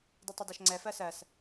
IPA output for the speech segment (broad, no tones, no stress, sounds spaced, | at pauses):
d i tˤ ʌ d ɒ ʃ ŋ͡ǀ ɛ f ɜ s ɜ s